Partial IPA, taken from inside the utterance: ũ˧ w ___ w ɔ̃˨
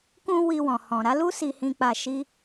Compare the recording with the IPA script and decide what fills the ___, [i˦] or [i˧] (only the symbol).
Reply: i˧